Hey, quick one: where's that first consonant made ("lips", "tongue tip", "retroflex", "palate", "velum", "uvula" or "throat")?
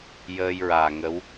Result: palate